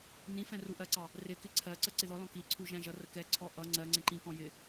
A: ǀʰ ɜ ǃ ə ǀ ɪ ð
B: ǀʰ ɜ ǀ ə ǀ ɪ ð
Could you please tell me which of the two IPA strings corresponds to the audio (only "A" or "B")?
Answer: B